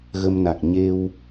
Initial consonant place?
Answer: velar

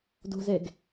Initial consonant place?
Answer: alveolar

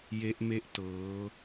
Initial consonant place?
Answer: palatal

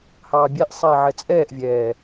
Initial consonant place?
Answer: glottal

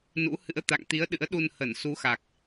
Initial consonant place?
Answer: alveolar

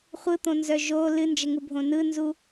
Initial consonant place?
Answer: uvular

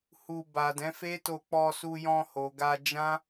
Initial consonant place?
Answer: glottal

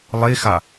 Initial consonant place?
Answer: alveolar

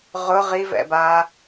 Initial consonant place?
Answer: uvular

